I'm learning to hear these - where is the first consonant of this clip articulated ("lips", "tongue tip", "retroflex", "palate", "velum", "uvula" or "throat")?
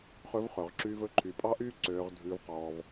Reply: uvula